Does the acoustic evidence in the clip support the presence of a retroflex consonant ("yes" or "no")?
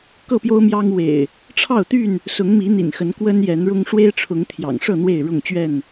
yes